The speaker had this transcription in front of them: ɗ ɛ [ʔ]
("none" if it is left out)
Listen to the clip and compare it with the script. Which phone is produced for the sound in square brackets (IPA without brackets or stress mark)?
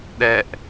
ʔ